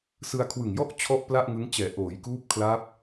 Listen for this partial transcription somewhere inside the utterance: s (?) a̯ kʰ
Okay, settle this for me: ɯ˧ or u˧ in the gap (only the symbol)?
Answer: ɯ˧